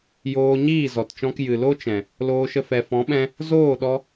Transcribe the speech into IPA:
j oː˧ ɲ iː˦˨ z ɔ˨ t t͡ʃ ɔ̃˧ k j ɨ˨ l o˦ t͡ʃ ɛ̃˨ | l oː˧ ʃ ə˧ f ɛ˨ f ɔ̃˨˦ ɓ ɛ̃˧ | z oː˦˨ ɗ ɔ˧

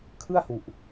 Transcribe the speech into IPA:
kʰ ɯ˥˩ a̯ h u˨˩ ʔ

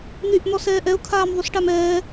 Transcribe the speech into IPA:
n̪ y ʔ n̪ ɔ s ɛː ʔ ɛ ʊ̯ kʰ aː m ðˤ y s ʈ a m ɛː

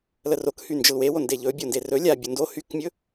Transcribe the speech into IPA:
l ə r o k h y n d͡ʒ ə l w e w o n d e ʎ ɵ bʲ o n d e r ɵ lʲ a bʲ u n d o h y k mʲ ɵ

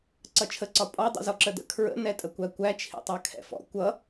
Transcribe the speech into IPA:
ǀ ʌ t͡ʃʰ ə ǀ ɒ pʼ ɔ dˤ ḭ z ɔ ǁ ə d ə̰ kʰ ɹ ə̰ n ɛ tʼ ə kʷ æ kʷ æ t͡ʃʰ ḭ tˤ ɑ kʰ ɛ̰ f ɔ̰ kʷ ʌ

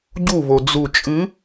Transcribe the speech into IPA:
ɟ u β o d͡z u t͡ʃʼ ɨ

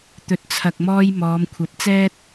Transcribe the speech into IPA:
t̪ ɵ˨ t̚ t͡sʰ ɐ˨ k̚ m ɔː˧ j m ɔː˨˧ m kʷʰ ɐ˨˥ p̚ t͡s ɛː˥ t̚

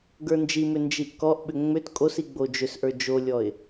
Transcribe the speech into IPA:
ɡ ə˞ n d͡ʒ i m ʏ n d͡ʒ i ʔ k ɔ ʔ ɓ ʏ ŋ͡m ʏ t kʼ o s i ɡ͡b o d͡ʒ ʏ s ʔ ə˞ d͡ʒ o lʲ ɔ ɪ̯

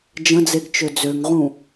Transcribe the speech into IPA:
d͡ʒ ə̃ d͡z e ɡ t͡ʃ ø d͡z ø ŋ ʁ ũ

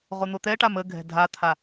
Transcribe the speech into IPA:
ʁ o n̪ o t̪ ɛ ʈ a m ə ɡʱ ɛ̤ dʱ a t̪ʰ a

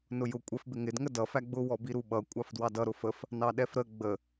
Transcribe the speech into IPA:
n ʊ j ʊ kʷʼ ɛ f b ɪ ŋ ɪ d ŋ ə d ʌ f æ ɡ͡b ʊ w ɔ b i ɾ u ɓ ʌ kʷʼ ɑ f d w ɑ d ʌ ɾ ʊ f ə f | n ɑ ɗ ɛ f ɾ ə ɡ͡b ə

